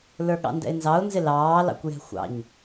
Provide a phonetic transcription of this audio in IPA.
l ə˞ ɠ ɑ̰ n d ɛ̰ ɪ̯ n z ɑ ʊ̯ n z ɪ l ɑː l ɑ̰ kʷ j ɛ̤ xʷ ɑ̰ ɲ

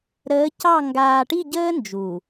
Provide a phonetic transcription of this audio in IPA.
ɾ əː˨˦ c ɑ˦˨ ŋ ɡ aː˨ ʈ i˦˨ ɟ əː˦ n d͡ʒ u˨

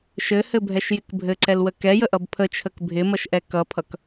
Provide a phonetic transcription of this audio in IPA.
ʃ ɘ h ɘ bʱ ɛ ʃ j ɪ k bʱ ɘ ǀ ɛ l w ə k ɛ j ə ʔ ʌ b pʰ ə t͡ʃʰ ə k bʱ ɪ m ʌ ʃ ʔ ɛ k ʌ pʰ ʌ k

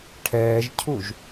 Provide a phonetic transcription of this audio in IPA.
ʈʰ ɛː ʒ cʰ u ʒ

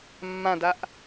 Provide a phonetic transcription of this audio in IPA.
mː ã d a ʔ

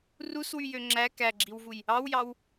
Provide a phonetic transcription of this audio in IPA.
r u s w y j ø ŋ͡ǁ æ k æ ɡ͡ǁ i w v u j | ɑ w j ɑ w

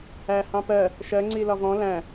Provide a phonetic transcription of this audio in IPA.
æ h ɑ̃ p ɜ | ʃ ɜ ŋ͡ǀ i l ɒ v ɔ̃ l æ̃

